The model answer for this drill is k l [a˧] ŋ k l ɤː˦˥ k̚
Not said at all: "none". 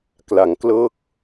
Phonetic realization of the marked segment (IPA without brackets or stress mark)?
a˩˦